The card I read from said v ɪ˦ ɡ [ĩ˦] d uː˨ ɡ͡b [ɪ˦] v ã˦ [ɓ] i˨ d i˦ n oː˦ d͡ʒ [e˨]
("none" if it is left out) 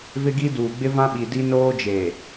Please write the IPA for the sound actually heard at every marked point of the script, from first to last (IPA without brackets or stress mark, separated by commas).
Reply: i˦, ɪ˦, ɓ, e˨